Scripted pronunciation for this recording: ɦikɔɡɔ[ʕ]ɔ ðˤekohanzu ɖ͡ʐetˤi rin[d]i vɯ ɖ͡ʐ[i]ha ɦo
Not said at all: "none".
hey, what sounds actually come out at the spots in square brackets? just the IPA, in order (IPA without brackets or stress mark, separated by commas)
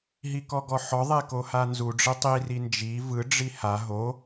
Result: ħ, d͡ʒ, i